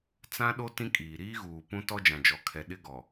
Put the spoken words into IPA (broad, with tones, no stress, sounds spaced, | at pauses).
t͡s ã˦ ɗ o˦ t ĩ˦ kʼ iː˨ ɾ iː˦ ɣ uː˨ p ũ˦ t ɔ˦ d͡ʒ ã˨ d͡ʒ ɔ˨ kʰ ɛ˨ ɗ ɪ˦ ɡ ɔ˨